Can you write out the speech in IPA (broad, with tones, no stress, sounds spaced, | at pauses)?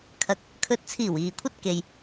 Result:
kʰ ɐ˨˥ k̚ | kʰ ɵ˨ t̚ t͡sʰ iː˨˩ w iː˨ kʷʰ ɐ˥ t̚ k e˨ j